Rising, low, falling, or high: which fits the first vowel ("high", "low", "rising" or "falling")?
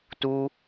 high